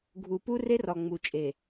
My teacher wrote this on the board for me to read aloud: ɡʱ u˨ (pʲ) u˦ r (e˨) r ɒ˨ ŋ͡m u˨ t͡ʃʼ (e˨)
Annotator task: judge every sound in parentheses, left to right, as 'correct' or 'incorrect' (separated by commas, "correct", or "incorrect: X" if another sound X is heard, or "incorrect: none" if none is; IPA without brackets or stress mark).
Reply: incorrect: p, incorrect: e˦, correct